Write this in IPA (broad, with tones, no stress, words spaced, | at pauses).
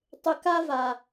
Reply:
tˤʏ˨ka˦va˨